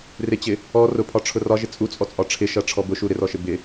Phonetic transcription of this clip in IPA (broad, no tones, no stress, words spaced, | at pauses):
rɪt͡ɕɪ | ɔ rʊpʰɒʈ͡ʂʰʊ rɒʒɪ t͡sʼut͡sʼɔt͡sʼɒ ʈ͡ʂʰɪʃʌʈ͡ʂʰɔ bʊʃu ɾɪrɔʃɪ bɪ